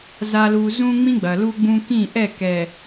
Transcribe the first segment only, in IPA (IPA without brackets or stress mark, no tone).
z